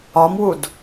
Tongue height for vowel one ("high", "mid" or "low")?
low